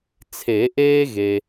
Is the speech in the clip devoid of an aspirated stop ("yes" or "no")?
no